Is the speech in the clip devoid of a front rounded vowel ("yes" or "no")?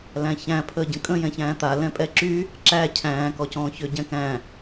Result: no